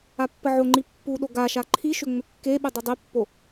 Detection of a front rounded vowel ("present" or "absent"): present